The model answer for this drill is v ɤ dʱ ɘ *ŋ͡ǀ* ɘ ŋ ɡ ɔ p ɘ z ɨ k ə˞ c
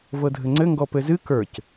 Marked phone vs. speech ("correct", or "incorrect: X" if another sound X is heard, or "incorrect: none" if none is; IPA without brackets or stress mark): correct